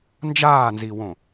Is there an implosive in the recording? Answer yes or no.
no